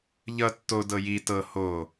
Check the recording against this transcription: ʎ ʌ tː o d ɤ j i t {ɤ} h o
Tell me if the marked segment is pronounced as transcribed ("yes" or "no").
yes